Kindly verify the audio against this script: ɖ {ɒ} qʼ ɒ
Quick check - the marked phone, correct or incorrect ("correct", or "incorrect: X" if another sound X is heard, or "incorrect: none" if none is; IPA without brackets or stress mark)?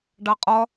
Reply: incorrect: ɑ